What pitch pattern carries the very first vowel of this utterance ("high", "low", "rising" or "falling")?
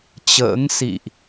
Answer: rising